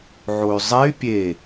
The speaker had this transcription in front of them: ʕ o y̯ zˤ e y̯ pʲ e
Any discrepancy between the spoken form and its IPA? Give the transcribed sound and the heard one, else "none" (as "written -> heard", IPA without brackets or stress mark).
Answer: none